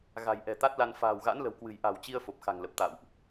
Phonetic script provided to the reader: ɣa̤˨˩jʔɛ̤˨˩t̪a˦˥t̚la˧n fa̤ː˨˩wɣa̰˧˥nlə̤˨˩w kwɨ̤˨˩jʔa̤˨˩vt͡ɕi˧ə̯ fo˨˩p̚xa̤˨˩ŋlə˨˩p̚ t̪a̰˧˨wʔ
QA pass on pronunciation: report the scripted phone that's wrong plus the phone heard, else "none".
v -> w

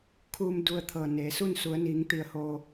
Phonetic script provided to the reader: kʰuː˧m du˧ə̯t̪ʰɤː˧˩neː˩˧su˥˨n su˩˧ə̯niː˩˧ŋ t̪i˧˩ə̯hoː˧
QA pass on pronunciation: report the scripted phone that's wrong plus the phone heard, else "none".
none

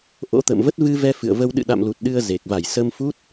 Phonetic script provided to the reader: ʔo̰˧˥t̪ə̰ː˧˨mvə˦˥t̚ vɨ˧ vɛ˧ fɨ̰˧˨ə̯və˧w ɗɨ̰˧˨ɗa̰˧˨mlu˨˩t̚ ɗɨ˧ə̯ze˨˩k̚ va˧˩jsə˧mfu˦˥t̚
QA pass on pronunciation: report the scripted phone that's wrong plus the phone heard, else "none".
none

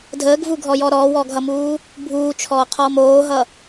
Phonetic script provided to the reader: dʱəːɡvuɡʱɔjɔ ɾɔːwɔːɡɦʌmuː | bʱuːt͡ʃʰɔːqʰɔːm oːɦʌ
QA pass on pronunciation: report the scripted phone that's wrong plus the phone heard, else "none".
none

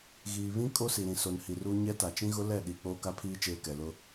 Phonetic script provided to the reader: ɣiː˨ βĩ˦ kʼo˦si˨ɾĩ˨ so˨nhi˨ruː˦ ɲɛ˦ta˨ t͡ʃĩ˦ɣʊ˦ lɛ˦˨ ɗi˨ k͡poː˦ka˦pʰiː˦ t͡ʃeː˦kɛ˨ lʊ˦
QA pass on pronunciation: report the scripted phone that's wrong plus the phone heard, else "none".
none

